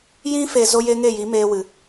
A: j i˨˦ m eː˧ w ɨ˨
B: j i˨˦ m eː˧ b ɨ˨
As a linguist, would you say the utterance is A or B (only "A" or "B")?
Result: A